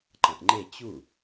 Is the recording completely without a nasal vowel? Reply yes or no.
no